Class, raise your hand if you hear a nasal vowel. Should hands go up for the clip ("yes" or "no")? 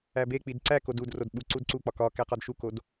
no